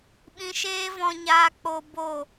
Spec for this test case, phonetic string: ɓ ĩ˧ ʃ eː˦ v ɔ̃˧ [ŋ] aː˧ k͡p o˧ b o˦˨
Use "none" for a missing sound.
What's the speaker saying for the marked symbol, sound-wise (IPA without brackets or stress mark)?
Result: ɲ